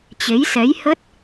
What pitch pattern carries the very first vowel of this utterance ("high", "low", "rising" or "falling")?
rising